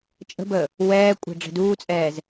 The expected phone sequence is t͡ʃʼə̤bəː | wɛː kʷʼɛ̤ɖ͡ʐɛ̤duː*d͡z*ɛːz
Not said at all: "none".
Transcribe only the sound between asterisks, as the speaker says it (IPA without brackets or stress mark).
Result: t͡sʼ